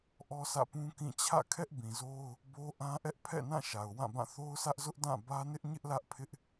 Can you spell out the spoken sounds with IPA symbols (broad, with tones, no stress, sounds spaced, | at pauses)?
ʔ ɔ˦ s ä̰˦˨ p ũ˦ k ĩ˦˨ t͡ɕʰ ä̰˦˨ kʰ ɛ˦ ʔ b ĩ˨ z o˦ ʊ̯ | b o˦ ʔ ã˦ ʔ ɛ˦ ʔ pʰ ɛ̰˦˨ n ã˦˨ ʃ a˨ ʊ̯ w ã˦˨ b ã˦˨ θ o˦ ʊ̯ s ä˦ ʔ z ʊ˦ ʔ d ã˦˨ b ä˦ n ɪ˦ ʔ ɲ ɪ˦ ʔ l ä˦ ʔ pʰ ɪ˦ ʔ